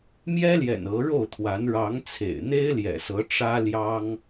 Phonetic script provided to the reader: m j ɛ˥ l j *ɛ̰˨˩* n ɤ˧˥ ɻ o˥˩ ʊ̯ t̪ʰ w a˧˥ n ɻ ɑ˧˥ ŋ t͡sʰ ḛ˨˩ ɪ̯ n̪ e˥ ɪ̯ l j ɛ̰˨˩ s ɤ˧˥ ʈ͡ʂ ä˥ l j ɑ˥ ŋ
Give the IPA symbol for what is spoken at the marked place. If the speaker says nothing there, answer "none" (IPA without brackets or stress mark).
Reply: ɛ̰˨˩